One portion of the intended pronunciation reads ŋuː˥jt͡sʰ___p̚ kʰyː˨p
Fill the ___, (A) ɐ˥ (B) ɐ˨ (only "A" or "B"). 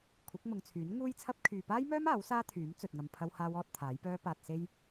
A